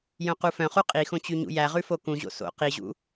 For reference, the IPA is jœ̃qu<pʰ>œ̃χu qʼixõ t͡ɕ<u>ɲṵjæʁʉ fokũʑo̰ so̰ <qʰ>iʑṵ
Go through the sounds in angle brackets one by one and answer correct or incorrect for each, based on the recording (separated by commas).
incorrect, incorrect, incorrect